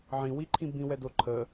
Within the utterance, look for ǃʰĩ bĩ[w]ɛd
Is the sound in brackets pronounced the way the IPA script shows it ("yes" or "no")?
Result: yes